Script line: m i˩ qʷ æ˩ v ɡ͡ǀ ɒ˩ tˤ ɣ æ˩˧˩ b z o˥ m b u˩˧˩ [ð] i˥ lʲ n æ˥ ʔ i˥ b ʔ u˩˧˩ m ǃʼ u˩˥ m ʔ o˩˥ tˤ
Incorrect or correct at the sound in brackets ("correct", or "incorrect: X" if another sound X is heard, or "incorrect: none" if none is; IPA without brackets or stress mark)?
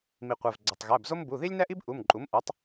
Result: correct